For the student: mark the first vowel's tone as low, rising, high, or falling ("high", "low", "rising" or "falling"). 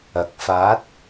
rising